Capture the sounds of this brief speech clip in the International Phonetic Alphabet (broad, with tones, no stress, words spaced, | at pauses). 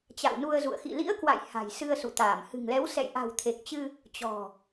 t͡ɕa̰˧˨wnu˧ə̯zṵ˧˨ə̯ xḭ˧˨ lḭ˧˥ə̯kwa̰˧˨j ha̤˨˩jsɨ˧ə̯ sṵ˧˨t̪aː˧˩m hɨ̤˨˩ŋlɛ˨˦w sɛ̰˧˨jʔa̤˨˩wt̪ʰe˨˩k̚t͡ɕɨ˧ | t͡ɕɔ̤˨˩